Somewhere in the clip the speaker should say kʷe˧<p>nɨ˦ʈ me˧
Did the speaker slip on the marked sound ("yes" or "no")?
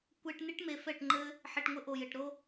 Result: yes